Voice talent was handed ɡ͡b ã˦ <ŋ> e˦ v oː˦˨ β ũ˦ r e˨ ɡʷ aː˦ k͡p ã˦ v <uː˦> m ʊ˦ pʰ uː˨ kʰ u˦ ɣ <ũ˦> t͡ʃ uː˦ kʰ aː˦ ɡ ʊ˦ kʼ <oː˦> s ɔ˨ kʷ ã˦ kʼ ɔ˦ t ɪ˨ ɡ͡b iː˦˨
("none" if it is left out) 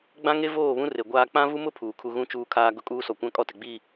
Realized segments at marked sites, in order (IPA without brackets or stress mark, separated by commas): ŋ, u˦, ũ˦, uː˦